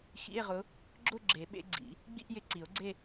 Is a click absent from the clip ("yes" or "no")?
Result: no